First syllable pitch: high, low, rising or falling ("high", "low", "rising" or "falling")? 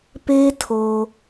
high